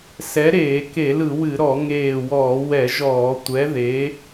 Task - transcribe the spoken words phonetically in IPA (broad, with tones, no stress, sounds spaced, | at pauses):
s ɛ˨˥ ɾ eː˧˩˧ k e˧˩˧ l ɯ˧˩˧ w ɨ˧˩˧ ɾ ɔ˧˩˧ ŋ eː˧˩ w ɔː˧˩˧ w ɛ˧˩˧ ʒ ɔː˧˩˧ tʷ ɛ˨˥ ð e˨˥